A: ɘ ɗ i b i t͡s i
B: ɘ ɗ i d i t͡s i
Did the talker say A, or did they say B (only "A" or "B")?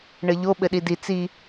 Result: B